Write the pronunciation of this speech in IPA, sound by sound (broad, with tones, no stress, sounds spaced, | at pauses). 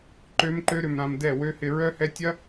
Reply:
ǃ ø˦ m ǃ ø˦ ɾ ʏ˧ m ɾ ã˧ m d ɛ˦˨ w ø˦ h ɪ˧ ɹ œ˦ h ɛ˦ tʲ ɐ˦